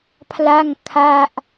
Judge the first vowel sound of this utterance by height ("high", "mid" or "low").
low